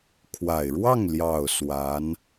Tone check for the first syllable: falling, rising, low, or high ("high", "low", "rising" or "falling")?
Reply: low